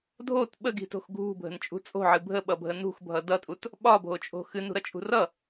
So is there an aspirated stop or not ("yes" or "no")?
no